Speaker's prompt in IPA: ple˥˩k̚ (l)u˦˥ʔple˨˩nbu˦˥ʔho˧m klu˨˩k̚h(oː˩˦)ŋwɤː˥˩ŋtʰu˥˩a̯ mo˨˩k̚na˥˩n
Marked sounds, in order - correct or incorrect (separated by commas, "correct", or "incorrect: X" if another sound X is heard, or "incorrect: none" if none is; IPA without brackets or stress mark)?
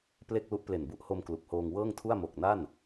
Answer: correct, incorrect: oː˧